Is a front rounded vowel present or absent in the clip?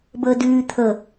present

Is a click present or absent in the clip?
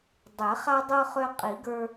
absent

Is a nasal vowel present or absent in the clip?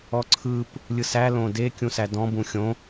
present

